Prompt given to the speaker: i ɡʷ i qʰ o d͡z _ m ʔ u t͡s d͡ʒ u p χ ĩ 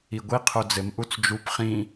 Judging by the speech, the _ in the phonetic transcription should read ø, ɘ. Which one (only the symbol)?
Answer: ɘ